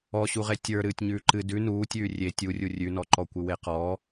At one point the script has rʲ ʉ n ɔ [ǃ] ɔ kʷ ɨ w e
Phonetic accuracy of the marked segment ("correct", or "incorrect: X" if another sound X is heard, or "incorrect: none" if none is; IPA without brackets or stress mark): correct